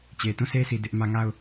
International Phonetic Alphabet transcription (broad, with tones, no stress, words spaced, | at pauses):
t͡ɕe˨tũ˦˨se˦sʰi˨ dɪ˦ʔmä˦ ŋa˦˨ʊ̯